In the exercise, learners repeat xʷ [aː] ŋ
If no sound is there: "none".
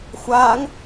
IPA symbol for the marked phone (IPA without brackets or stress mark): aː